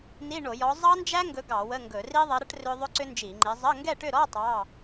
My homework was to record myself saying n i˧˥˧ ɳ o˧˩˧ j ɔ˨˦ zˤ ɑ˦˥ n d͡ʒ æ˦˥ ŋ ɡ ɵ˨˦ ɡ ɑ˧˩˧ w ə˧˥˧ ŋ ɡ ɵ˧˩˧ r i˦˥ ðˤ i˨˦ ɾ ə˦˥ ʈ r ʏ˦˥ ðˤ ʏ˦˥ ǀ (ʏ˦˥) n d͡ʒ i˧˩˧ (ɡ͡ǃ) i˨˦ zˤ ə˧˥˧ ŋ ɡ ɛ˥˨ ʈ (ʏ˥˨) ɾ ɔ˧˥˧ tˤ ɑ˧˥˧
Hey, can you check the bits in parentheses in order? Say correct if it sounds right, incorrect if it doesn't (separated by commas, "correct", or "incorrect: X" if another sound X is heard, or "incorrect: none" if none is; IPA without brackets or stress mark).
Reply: correct, incorrect: ŋ͡ǃ, correct